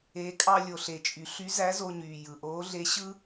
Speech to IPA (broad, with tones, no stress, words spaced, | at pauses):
e˩˧kʼɑ˧ lʲo˩ɬe˩t͡ʃʼy˩˧ɬy˧˥ zæ˧˥zo˧ɲyː˩ jɯ˩ʔoː˧˥ ɮe˧˥ɕɯ˥